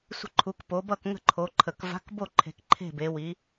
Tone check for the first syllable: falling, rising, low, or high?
falling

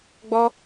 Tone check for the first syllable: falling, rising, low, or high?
high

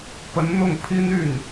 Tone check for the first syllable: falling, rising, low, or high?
rising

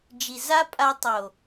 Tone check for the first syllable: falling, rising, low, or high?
low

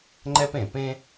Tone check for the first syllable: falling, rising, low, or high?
high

